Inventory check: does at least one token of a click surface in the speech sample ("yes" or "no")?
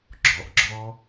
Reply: yes